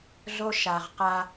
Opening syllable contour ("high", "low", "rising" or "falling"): high